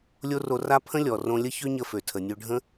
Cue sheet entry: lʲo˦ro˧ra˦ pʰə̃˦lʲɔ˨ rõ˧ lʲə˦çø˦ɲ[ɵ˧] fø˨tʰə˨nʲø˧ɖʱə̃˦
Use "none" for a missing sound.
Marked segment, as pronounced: ə˧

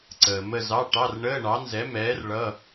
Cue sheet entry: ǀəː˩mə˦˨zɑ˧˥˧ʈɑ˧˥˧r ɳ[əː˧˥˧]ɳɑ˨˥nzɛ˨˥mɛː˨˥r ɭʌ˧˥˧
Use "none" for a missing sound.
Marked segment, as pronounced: əː˧˥˧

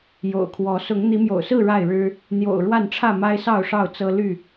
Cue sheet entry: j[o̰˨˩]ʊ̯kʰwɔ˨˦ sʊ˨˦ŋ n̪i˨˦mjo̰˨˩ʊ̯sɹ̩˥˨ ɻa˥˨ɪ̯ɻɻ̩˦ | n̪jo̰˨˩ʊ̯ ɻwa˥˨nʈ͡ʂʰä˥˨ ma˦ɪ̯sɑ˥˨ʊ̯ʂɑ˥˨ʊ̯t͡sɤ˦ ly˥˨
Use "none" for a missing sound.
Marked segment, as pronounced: o̰˨˩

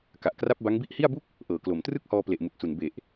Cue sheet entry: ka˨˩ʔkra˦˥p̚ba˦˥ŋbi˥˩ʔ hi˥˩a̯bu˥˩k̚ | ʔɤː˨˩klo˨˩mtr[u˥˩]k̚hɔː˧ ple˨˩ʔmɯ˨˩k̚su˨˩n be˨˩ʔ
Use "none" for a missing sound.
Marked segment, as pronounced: ɯ˥˩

